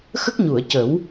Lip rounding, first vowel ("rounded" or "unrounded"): unrounded